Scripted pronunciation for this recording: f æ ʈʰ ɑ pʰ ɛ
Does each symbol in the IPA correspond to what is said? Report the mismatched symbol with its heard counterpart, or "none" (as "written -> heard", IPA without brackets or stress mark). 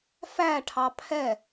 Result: none